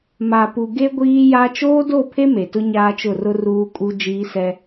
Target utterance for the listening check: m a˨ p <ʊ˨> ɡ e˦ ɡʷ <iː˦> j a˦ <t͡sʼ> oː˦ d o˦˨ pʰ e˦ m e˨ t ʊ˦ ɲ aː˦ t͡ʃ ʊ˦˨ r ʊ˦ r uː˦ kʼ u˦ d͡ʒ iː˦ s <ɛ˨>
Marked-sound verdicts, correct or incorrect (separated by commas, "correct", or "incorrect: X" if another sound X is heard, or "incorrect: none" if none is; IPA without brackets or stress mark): incorrect: u˨, correct, incorrect: t͡ʃ, incorrect: ɛ˦